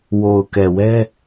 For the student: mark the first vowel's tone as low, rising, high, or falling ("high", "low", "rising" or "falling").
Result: low